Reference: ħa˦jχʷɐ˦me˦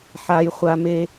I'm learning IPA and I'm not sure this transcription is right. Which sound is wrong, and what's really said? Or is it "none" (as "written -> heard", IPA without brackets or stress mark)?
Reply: ɐ˦ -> a˦